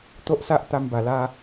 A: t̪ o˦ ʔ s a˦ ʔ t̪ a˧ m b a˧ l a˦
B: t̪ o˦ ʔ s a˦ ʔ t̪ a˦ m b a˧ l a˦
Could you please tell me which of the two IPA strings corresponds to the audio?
B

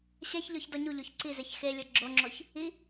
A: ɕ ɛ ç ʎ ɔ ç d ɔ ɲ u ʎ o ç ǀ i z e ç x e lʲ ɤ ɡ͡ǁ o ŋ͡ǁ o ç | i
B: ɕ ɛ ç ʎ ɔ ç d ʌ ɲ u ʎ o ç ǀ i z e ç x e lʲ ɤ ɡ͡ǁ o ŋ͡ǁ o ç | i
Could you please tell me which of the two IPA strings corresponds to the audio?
A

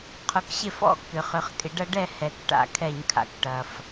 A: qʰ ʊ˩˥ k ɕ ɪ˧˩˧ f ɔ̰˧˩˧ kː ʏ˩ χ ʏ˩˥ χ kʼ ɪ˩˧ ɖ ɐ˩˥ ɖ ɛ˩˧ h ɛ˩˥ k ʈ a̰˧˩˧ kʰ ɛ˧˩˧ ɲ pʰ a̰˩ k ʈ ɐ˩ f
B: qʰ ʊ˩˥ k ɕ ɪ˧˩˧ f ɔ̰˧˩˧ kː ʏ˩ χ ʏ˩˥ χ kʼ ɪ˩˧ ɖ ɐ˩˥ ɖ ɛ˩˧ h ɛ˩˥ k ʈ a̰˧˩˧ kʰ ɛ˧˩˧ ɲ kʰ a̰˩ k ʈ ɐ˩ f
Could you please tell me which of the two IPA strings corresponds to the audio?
B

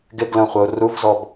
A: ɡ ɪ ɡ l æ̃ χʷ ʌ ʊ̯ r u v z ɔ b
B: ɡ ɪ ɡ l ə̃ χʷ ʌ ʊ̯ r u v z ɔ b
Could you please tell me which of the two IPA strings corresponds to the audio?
B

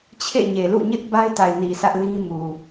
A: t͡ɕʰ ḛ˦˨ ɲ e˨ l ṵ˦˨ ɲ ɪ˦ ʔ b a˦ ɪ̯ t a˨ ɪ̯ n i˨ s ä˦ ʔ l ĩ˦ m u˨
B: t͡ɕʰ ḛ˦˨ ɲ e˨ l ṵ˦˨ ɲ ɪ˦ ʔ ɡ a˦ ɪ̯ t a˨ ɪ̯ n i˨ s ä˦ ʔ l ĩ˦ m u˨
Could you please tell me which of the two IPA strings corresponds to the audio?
A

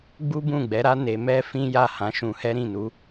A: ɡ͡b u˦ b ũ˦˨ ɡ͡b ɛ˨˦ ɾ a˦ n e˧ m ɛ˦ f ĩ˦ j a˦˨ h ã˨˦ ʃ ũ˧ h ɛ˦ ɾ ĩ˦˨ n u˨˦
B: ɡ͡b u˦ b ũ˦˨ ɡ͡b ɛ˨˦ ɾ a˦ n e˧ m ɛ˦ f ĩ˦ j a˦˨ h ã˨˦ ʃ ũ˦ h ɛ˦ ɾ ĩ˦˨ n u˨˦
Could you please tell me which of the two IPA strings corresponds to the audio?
A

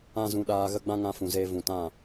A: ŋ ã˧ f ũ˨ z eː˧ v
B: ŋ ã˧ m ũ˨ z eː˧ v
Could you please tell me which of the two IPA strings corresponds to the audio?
A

